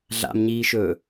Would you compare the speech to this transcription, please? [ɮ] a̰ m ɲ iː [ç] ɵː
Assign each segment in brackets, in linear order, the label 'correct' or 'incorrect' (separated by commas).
correct, incorrect